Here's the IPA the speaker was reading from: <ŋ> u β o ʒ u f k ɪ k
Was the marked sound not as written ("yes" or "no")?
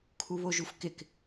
yes